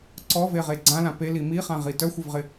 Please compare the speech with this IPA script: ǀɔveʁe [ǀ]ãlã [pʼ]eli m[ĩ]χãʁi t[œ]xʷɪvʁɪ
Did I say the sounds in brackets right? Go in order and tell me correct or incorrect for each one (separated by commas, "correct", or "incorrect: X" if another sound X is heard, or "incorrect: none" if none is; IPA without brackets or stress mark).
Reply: incorrect: ɡ͡ǀ, incorrect: p, incorrect: i, correct